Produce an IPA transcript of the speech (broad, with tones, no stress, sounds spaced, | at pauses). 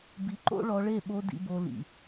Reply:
b i˧ ǃ o̰˦ ɭ ɔ˧ ɭ e˦˨ ɓ o˧ d ḭ˧ b o˧ l ḭ˨